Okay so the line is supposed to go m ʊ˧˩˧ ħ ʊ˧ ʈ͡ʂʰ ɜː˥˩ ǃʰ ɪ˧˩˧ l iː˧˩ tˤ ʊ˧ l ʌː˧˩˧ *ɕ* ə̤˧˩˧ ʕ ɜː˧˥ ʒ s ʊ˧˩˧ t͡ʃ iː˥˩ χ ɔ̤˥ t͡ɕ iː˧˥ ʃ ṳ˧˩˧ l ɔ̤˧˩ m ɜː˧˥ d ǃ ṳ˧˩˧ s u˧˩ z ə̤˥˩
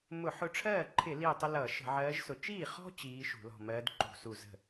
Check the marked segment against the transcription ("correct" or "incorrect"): incorrect